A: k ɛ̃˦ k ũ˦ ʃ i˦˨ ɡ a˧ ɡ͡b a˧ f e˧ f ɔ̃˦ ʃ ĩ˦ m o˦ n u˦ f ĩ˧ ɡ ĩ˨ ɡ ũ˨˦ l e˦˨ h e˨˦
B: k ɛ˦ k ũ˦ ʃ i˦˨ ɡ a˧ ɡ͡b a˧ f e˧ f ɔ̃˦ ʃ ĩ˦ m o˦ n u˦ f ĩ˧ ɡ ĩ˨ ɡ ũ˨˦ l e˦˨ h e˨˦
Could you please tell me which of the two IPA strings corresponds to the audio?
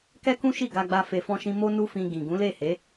B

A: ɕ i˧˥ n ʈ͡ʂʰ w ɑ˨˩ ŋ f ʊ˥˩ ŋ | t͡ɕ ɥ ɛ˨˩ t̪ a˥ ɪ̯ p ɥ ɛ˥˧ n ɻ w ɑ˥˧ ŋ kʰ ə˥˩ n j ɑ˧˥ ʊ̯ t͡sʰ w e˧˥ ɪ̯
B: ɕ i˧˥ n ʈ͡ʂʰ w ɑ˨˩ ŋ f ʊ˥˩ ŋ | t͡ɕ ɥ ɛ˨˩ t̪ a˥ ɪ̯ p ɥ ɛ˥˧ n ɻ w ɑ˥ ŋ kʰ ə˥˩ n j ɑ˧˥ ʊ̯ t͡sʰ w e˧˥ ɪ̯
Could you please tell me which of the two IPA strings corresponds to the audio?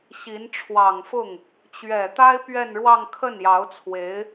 A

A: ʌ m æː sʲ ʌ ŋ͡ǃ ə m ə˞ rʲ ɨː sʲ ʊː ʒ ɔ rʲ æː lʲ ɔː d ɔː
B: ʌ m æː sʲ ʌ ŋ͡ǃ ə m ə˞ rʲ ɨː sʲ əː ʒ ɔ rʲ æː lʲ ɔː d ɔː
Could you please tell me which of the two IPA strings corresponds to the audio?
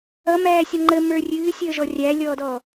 B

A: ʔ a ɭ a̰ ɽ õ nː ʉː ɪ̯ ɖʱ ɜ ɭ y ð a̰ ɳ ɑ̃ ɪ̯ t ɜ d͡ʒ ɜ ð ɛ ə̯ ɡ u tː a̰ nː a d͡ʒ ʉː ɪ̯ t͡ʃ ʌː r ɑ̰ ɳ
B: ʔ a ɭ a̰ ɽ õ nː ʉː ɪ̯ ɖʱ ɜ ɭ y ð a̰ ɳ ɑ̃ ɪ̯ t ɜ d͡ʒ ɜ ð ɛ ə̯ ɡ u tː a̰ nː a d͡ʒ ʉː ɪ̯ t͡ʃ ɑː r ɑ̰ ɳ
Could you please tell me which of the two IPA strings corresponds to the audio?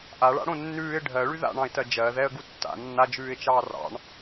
B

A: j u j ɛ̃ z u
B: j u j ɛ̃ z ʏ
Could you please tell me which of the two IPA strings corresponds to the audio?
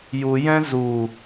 A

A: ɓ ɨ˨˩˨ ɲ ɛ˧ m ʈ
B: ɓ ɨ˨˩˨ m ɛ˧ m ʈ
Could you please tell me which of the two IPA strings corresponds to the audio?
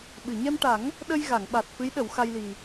A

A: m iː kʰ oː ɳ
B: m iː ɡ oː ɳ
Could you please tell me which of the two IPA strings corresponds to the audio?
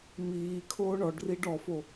A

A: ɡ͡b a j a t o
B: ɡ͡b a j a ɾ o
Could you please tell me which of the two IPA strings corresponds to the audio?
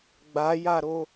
B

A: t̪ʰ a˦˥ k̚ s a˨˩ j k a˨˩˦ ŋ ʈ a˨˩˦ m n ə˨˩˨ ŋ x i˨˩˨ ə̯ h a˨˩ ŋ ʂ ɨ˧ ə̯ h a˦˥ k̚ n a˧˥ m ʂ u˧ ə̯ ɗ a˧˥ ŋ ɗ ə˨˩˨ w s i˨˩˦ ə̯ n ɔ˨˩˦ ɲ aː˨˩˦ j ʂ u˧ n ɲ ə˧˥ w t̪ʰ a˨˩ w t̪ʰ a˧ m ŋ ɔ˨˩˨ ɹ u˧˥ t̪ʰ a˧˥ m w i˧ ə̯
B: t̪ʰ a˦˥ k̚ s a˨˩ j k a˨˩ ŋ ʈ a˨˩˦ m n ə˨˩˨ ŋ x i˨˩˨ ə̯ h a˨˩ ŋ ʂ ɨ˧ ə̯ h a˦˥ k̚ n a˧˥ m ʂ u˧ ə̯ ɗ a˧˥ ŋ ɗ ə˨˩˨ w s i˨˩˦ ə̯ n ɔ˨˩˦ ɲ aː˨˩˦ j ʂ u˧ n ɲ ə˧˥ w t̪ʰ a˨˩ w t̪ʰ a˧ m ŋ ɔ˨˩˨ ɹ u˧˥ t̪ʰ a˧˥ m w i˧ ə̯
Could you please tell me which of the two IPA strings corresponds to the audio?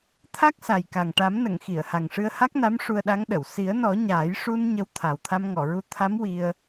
B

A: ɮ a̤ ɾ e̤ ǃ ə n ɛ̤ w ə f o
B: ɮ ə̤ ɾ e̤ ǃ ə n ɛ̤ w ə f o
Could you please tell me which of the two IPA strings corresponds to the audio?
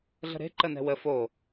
B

